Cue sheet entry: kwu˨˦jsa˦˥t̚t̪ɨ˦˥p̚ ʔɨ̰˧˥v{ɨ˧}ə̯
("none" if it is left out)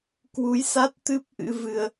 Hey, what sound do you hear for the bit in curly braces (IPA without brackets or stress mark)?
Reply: ɨ˧